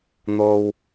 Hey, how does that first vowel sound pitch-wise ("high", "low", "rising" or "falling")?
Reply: high